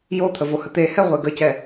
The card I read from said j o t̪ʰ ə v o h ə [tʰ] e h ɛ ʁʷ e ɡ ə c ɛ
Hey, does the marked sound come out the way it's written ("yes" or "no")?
no